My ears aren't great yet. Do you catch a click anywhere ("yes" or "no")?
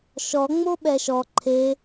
yes